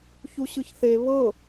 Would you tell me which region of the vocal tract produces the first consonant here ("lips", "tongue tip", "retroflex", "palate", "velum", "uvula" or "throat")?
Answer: palate